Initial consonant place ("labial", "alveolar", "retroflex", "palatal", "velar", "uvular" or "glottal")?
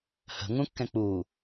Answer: glottal